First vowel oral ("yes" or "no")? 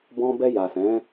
no